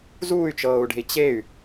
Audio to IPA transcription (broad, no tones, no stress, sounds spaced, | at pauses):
z uː y̯ t͡ʃ ɤː u̯ ɖ e̤ i̯ t͡ɕ e y̯